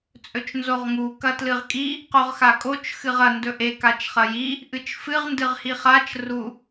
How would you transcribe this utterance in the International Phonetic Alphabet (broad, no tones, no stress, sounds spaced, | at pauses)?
t͡sʼ ɵ t͡ʃ n z o ʁ ŋ u k ɐ t l ɨ ʁ kʼ i | q o ʁ x a kʼ o t͡ʃ x ɨ ʁ ɐ n d ɵ ʔ e k a t͡ʃ χ ɐ j i | ʔ ɨ t͡ʃ f ɨ ʁ n d ɨ ʁ h i χ a t͡ʃ r u